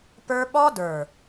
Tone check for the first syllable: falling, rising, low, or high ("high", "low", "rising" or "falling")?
high